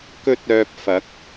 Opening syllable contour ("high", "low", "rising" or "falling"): high